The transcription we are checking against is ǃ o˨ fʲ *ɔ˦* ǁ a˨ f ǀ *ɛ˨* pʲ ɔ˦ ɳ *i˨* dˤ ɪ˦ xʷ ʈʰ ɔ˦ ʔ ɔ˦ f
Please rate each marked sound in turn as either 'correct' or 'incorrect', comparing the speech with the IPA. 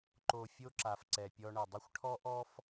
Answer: incorrect: o˦, correct, incorrect: ɪ˨

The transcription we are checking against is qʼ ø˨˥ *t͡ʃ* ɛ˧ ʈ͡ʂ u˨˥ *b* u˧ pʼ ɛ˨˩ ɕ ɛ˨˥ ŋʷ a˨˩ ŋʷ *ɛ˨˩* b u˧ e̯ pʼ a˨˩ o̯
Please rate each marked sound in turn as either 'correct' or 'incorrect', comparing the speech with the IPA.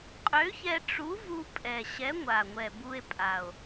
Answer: incorrect: ç, incorrect: v, correct

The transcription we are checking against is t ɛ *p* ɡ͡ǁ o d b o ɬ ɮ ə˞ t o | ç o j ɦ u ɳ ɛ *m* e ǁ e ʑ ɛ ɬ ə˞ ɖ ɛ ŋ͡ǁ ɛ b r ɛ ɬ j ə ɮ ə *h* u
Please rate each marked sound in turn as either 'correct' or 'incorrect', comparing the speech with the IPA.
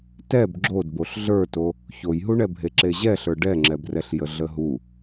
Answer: incorrect: b, incorrect: bʱ, incorrect: ɦ

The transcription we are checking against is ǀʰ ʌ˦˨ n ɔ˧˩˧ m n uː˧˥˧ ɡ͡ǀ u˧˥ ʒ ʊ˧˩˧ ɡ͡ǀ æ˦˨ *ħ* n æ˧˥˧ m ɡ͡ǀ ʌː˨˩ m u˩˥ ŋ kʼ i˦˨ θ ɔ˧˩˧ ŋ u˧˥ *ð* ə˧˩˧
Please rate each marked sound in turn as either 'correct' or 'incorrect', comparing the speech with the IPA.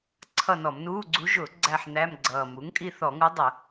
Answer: correct, incorrect: dˤ

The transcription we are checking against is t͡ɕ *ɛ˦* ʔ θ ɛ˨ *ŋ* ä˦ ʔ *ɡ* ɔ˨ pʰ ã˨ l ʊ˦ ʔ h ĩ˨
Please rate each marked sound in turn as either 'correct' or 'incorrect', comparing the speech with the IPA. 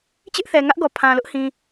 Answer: incorrect: ɪ˦, correct, correct

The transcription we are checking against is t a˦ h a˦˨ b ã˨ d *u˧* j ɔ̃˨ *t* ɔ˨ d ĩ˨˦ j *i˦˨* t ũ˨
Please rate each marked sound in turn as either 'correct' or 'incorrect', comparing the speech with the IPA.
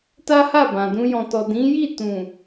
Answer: incorrect: ũ˧, correct, correct

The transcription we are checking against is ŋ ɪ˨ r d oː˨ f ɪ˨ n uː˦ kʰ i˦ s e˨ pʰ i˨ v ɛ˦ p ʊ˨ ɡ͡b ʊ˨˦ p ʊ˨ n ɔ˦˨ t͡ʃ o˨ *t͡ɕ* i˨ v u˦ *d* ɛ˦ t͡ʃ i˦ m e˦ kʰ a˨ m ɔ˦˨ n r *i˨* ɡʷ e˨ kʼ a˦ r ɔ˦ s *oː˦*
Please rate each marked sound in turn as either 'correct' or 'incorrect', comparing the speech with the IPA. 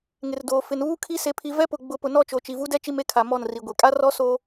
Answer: incorrect: t͡ʃ, correct, correct, correct

